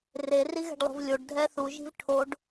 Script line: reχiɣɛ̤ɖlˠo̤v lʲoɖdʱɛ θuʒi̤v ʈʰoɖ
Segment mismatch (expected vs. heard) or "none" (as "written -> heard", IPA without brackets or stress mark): χ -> r